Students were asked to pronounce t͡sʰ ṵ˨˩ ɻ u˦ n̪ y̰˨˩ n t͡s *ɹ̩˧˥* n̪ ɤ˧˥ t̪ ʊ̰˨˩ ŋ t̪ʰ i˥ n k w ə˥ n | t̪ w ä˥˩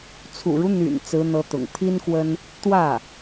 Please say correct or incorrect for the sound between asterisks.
correct